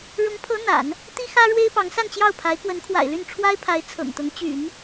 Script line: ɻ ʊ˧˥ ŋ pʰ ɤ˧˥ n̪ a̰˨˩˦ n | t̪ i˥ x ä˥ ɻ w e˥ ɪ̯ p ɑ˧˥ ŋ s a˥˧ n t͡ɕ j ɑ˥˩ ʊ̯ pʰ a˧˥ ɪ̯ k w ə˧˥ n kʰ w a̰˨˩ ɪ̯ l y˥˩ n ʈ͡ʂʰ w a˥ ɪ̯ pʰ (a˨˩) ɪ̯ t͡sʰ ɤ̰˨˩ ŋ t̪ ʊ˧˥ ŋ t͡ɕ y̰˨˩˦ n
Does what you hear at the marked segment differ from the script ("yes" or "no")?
yes